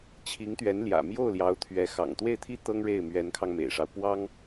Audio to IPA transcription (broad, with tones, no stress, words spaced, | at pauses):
t͡ɕʰi˧˥ŋt̪ɥɛ˧˥nljä̰˨˩ mjo˥˩ʊ̯ljɑ˧˥ʊ̯t̪ʰɥɛ˧˥ xɑ̰˨˩ŋt̪we˥˩ɪ̯t̪ʰi˥ t̪ɤ˥ŋɻe˥˩ɪ̯ mɥɛ˧˥nkʰɑ˧ŋmḛ˨˩ɪ̯ʂɑ˦ʊ̯ pwɑ˥ŋ